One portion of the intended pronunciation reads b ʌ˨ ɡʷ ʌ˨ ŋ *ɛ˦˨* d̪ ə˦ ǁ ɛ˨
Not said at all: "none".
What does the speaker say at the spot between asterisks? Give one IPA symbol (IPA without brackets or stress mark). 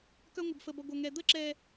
ɛ˨